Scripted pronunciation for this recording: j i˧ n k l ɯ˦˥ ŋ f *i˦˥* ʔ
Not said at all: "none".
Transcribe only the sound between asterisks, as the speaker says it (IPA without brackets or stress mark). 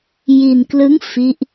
i˦˥